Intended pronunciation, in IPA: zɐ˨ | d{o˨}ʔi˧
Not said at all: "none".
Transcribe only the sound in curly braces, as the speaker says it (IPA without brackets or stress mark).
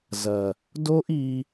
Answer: o˦